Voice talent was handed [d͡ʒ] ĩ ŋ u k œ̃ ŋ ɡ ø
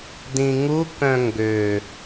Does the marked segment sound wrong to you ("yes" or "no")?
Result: yes